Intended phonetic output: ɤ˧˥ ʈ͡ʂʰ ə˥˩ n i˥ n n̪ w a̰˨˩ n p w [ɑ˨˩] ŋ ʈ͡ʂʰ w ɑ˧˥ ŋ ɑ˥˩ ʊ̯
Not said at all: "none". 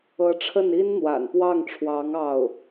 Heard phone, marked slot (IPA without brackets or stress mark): ɑ˥˩